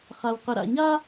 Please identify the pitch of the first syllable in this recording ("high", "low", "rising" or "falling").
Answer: low